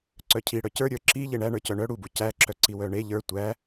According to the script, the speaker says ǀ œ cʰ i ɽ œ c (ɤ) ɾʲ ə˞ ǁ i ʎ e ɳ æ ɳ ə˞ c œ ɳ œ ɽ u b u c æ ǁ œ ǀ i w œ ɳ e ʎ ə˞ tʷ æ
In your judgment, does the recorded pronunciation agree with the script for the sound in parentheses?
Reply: no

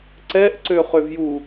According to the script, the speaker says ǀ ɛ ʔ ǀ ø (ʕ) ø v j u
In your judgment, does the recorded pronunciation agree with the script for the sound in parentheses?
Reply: no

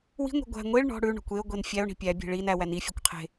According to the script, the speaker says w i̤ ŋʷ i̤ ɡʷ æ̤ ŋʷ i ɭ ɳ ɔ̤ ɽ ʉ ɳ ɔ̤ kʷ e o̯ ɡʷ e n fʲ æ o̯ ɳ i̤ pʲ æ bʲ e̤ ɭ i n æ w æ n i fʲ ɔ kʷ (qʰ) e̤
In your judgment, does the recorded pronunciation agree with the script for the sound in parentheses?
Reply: yes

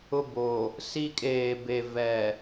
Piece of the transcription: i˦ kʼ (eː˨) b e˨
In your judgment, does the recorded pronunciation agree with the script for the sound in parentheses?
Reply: yes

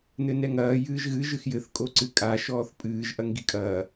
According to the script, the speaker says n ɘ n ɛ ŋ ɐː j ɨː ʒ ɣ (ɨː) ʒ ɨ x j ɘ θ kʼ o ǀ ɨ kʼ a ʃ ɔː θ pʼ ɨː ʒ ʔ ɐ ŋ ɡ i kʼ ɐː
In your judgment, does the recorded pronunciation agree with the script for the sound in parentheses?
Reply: no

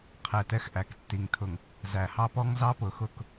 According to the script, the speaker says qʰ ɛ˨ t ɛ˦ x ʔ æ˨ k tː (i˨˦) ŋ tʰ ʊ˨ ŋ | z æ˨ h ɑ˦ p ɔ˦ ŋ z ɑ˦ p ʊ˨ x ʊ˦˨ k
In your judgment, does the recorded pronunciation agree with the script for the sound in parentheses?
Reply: no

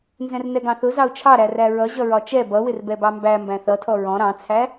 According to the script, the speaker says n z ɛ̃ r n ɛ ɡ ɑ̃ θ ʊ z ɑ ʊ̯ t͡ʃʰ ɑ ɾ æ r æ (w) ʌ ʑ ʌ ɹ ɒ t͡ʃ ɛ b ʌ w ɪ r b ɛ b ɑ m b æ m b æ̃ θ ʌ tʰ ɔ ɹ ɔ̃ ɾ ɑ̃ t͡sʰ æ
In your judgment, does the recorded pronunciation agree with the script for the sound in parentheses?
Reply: no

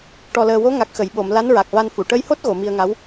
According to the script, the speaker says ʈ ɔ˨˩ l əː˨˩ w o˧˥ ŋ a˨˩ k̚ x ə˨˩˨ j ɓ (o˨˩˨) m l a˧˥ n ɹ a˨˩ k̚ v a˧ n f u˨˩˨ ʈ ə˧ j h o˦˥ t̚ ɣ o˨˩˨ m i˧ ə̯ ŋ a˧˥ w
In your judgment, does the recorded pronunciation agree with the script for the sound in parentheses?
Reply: yes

